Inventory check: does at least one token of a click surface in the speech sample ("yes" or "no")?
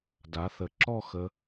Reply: yes